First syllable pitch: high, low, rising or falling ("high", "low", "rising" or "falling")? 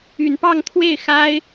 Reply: low